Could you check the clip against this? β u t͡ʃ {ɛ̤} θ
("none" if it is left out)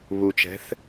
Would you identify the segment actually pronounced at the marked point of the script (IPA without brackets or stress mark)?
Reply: ɛ̤